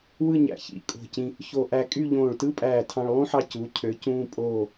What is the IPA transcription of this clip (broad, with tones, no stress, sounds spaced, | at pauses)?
w ɯ˥˧ ɲ æ̰˧˩ ç ḭ˧˩ kʼ o̤˧˩ c ĩ˧ | ç o˧ ʔ æ˧ kʼ y˥˧ ʎ õː˧˩ ɭ t ɯ˥ pʼ æː˧˩ tʰ ɑ̃˧ ɭ lˠ ũ˥ ħ ɑ˧ c u˩˧ cʰ ø˩˧ c ũː˧ pʼ oː˧˩